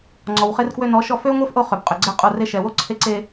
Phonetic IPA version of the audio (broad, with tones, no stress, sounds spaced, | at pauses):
ŋ͡ǀ ɔ˨ w χ e˧ r k w ø˧ n ɔ˨˦ ʃ ɔ˧ f ø˦ ŋʷ e˦ f ʔ o˧ χ ø˨ b qʼ ø˨ ɡ͡ǀ ɛ˦ qʼ o˧ r e˦ ʃ ɛ˨ w o˦ ǀʰ e˧ ǀ e˧